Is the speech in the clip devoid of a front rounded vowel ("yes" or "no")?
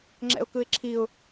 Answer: yes